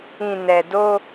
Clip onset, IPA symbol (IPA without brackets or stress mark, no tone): ĩ